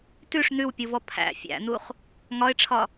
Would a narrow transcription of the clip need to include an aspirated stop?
yes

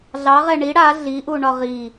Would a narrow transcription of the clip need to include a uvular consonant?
yes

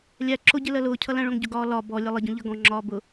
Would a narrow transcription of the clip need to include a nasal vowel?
yes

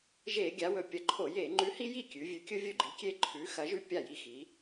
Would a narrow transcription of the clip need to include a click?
yes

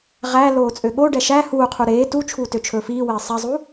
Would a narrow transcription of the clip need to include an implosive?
yes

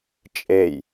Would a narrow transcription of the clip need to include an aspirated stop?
no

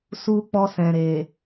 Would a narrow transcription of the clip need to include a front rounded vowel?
no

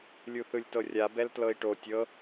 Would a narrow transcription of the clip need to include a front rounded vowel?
no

